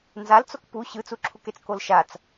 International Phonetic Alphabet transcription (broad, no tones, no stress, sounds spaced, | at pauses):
n z a l t͡s o k p u ɕ ɯ t͡s u ǁʰ u k e t͡s k o l ʃ a t͡s